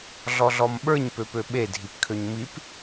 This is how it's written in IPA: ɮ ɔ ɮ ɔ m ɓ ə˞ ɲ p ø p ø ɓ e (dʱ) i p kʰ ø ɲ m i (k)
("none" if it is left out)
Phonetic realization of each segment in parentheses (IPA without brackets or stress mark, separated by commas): dʱ, p